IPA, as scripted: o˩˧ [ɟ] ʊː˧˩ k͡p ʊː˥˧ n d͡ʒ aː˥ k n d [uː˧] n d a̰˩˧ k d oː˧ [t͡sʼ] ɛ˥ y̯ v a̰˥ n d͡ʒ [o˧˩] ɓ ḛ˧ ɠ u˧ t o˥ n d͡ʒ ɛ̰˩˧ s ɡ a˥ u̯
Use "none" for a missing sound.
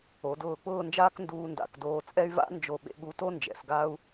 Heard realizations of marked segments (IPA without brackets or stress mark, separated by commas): d, uː˧, t͡sʼ, o˧˩